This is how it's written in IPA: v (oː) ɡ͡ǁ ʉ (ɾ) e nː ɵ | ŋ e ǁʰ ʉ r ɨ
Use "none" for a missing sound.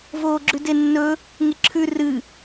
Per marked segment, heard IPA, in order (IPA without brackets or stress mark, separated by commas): oː, d